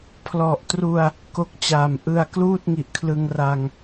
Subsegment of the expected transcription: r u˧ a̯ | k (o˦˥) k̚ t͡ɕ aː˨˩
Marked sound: correct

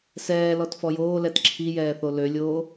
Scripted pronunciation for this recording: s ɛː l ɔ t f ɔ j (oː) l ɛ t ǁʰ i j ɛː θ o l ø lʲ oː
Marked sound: correct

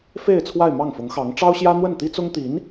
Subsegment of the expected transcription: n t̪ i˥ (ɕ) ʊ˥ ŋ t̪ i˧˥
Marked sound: incorrect: t͡s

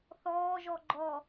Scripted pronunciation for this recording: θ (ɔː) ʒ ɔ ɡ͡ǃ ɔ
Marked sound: correct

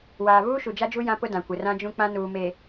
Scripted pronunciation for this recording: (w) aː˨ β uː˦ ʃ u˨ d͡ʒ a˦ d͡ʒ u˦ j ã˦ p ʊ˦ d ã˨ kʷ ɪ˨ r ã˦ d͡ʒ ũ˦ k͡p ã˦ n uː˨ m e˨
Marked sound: correct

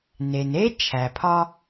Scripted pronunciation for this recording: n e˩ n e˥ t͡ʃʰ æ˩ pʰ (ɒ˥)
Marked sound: correct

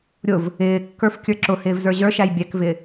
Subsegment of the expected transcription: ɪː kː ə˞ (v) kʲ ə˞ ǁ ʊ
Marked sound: incorrect: f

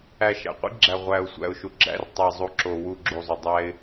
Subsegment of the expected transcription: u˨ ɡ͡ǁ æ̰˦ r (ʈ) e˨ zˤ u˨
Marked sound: incorrect: tˤ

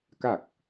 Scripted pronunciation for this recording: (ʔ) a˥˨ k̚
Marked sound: incorrect: k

